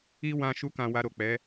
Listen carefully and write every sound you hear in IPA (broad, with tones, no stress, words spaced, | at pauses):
i˦wã˧ ʃu˧kã˨ wa˧ɾo˨k͡pɛ˨˦